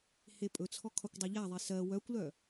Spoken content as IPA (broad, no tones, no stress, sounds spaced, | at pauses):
h e pʼ ɵ t͡sʰ ɔ kʰ ɒ kʷ dˤ ɜ ʎ a ðˤ e s ɜ w œ kʷ l œ